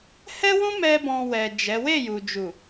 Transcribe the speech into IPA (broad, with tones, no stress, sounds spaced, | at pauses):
h ɛ˦ w ũ˦ m ɛ˦ b ɔ̃˧ w ɛ˨ d͡ʒ ɛ˨˦ w e˦˨ j u˨ d͡ʒ u˨